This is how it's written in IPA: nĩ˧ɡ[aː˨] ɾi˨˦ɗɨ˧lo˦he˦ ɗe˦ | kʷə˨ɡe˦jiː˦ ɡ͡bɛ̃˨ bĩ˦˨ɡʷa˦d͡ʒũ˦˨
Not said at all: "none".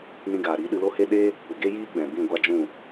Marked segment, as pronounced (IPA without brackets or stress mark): aː˨